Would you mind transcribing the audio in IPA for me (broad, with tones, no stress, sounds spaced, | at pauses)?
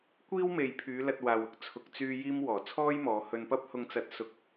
kʷ iː˥ w m e˨ j pʰ yː˨˧ l ɐ˧ t̚ w aː˨ w ʊ˥ k̚ t͡sʰ ʊ˨ k̚ t͡s yː˧ j iː˥ m w ɔː˨˩ t͡sʰ ɔː˥ j m ɔː˨˧ h ɵ˧ n p ɐ˥ p̚ h ʊ˧ ŋ t͡s ɐ˧ t̚ s ʊ˥ k̚